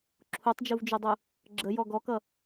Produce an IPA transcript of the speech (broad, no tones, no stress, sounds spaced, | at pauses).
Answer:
ǁʰ u tˤ d͡ʒ u v d͡ʒ u dˤ u | ɡ͡ǁ ə j ɔ ɡ ɔ k ʌ